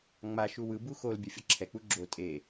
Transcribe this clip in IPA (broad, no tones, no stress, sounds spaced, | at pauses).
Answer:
ŋ͡m a ʃ u w ɯ b u x o l bʲ ɛ fʲ ʌ ǁʰ ɛ k͡p u ɡ͡ǁ o tʼ e